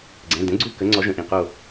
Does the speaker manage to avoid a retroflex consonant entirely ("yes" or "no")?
yes